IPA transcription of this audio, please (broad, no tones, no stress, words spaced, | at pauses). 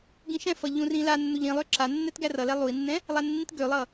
ɡĩʃɛ̃fʌ ʎũrĩlanːuʎ ĩlˠø ǁanːɛt ɡærʌlɛ lˠui̯nːɛ̃ | lˠanːĩtɡølˠʌ